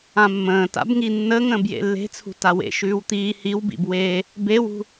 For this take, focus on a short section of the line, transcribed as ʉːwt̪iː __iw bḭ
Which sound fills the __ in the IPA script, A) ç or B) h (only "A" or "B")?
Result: B